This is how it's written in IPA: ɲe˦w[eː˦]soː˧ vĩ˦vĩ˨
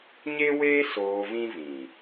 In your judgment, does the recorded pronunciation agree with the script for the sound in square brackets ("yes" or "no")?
yes